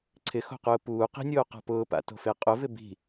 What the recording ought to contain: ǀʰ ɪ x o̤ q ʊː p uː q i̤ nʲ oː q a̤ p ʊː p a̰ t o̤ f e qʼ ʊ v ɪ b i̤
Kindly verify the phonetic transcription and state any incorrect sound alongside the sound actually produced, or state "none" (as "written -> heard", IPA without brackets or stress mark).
none